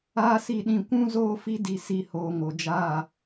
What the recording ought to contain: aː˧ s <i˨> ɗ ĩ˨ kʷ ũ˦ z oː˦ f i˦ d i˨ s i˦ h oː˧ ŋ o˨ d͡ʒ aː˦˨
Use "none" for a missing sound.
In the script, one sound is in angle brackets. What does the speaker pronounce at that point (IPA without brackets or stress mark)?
i˨